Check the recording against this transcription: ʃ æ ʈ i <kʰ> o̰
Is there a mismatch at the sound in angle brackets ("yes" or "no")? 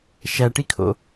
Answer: no